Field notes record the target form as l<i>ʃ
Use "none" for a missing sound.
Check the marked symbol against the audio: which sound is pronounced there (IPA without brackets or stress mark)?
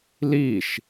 i